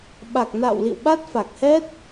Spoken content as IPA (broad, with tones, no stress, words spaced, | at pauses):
ɓa˨˩k̚ na̰ː˧˨wlḭ˧˨w ɓa˦˥t̚fa˨˩k̚hɛ˦˥t̚